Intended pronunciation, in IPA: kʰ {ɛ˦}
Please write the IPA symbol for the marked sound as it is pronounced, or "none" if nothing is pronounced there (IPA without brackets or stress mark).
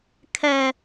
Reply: ɛ˦